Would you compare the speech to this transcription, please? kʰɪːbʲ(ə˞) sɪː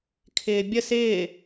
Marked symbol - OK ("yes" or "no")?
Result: no